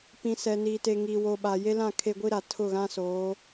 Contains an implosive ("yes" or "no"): yes